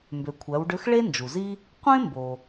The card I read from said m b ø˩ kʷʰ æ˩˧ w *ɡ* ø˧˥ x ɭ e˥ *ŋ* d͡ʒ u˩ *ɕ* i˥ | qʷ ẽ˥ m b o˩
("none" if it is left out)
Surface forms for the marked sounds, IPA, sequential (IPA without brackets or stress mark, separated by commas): ɖ, n, z